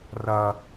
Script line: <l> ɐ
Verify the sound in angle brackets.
incorrect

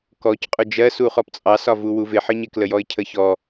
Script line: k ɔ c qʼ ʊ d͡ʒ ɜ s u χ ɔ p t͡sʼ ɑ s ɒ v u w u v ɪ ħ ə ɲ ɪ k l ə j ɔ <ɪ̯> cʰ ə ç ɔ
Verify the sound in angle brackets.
correct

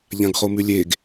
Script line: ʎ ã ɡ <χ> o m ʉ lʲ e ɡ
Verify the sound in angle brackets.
correct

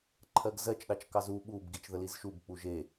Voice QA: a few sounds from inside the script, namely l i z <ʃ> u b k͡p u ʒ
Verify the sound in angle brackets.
correct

